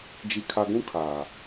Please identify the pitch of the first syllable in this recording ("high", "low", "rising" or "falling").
low